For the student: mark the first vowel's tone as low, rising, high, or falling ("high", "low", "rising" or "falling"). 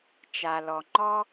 low